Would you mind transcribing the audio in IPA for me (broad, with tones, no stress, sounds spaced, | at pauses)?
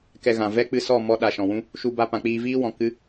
k ɛ˧ ɣ ã˨ v ɛ˦ k͡p ɨ˧ s ɔ˦˨ m ɔ˧ ɗ a˨ ʃ ɔ̃˨ w ũ˦ | ʃ u˧ b a˧ p ã˨ k͡p iː˧ v iː˦ w ɔ̃˨ k ɨ˦